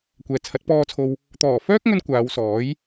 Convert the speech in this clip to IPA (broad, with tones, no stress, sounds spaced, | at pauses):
kʷ ɛː˨ t͡sʰ ɐ˨˥ t̚ p ɔː˨ t͡sʰ o˨ w | t̪ ɔː˨˩ f œː˥ k̚ ŋ ɵ˧ n kʷ aː˨˧ w s ɔː˨˥ j